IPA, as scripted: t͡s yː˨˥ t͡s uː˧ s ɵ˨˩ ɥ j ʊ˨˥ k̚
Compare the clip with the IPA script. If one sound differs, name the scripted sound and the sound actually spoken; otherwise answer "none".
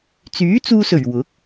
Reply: j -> w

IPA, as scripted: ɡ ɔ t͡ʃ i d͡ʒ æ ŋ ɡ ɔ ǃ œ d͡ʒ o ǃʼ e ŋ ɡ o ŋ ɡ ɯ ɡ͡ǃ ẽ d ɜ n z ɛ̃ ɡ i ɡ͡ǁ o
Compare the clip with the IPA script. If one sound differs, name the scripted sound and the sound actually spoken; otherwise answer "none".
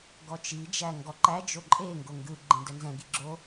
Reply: œ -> æ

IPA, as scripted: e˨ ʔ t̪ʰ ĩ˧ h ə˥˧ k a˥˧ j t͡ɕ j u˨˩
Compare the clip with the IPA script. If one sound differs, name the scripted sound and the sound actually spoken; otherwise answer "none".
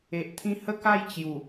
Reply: none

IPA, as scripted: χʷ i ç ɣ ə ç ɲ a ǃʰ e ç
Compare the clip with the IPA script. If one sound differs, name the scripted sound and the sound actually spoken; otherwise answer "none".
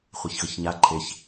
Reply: i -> e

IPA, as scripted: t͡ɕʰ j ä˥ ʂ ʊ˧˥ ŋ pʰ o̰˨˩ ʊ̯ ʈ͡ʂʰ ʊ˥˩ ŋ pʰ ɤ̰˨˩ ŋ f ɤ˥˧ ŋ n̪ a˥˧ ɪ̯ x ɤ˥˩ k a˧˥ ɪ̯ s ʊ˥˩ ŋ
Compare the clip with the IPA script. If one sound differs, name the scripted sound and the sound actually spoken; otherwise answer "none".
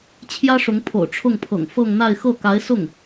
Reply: none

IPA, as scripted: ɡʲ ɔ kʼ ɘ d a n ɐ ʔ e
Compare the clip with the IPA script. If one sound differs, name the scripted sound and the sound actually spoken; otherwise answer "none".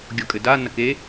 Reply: ʔ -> k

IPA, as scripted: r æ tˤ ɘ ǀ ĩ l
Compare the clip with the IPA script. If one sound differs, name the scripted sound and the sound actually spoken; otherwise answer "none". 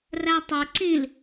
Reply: none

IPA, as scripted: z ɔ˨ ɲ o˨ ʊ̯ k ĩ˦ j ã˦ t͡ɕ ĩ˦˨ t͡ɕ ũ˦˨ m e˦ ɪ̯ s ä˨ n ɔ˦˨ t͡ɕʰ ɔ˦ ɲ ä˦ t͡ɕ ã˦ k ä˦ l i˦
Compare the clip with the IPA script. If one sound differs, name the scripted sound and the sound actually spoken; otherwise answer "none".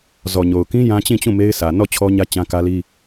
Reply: none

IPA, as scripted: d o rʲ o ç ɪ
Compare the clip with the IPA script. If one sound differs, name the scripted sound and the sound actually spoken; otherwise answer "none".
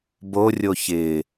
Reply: d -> b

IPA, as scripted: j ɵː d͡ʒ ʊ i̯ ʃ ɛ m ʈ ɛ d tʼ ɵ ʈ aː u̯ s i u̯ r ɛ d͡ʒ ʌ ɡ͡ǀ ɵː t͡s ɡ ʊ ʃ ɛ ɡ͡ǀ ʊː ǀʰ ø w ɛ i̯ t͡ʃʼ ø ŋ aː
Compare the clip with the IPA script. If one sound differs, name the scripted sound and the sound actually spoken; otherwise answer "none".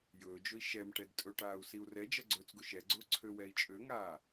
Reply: none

